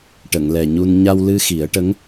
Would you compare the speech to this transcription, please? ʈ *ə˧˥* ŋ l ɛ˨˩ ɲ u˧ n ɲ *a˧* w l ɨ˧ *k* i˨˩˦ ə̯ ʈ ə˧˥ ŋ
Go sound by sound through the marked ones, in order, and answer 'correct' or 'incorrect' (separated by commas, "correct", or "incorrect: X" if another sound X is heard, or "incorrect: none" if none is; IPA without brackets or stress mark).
incorrect: ə˨˩˨, correct, incorrect: x